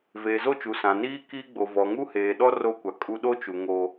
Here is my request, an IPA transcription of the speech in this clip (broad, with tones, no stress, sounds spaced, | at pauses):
v eː˨ z o˦˨ t͡ʃ u˨ s ã˨ n iː˦ k iː˦ ɡ͡b o˨ v ɔ˨ ŋ u˦ h eː˨ ɗ ɔ˦ r o˦ kʷ a˨ kʼ u˦ ɗ o˦ t͡ʃ u˨ ŋ oː˦